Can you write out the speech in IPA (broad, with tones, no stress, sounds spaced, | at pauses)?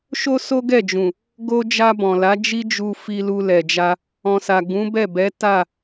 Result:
ʃ o˦ s o˦ ɡ ɛ˦˨ d͡ʒ ũ˨ | ɡ o˧ d͡ʒ a˧ b ɔ̃˨ l a˨˦ d͡ʒ i˦ d͡ʒ u˧ f i˧ l u˧ l ɛ˨ d͡ʒ a˧ | ɔ̃˨ s a˨ ɡ ũ˨˦ b ɛ˦˨ b ɛ˨˦ t a˦˨